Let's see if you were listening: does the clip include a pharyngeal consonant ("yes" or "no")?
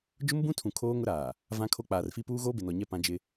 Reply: no